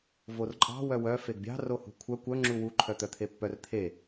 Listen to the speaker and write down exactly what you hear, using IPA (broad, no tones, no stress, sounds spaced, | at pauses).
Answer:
v o r ǃʼ ɑ̤ w œ w œ f e ɡ bʲ ɑ̤ r o h ṳ kʷʰ œ kʷ œ ŋ͡ǁ u w u ǃʰ œ t̪ œ t̪ʰ e pː œ r t̪ʰ e